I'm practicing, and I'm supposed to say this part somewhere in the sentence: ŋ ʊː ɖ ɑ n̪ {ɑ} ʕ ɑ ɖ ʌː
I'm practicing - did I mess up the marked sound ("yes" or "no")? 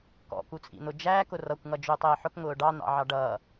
yes